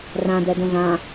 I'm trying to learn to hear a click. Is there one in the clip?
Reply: no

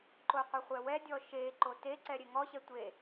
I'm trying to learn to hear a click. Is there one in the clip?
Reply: yes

